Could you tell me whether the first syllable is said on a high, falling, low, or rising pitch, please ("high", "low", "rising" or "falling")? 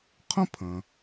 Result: high